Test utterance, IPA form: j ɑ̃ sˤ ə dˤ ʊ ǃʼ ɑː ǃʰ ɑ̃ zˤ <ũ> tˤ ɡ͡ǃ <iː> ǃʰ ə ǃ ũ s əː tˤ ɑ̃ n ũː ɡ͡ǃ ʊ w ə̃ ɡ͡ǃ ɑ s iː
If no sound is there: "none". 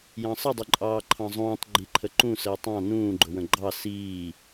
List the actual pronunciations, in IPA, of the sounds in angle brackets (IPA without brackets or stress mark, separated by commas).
ũː, i